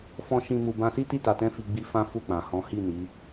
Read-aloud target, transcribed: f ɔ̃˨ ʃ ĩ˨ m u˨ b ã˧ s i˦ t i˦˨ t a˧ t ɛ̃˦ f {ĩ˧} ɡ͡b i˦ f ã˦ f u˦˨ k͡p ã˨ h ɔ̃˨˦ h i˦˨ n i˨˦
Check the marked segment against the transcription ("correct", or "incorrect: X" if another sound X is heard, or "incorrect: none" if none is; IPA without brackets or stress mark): incorrect: i˧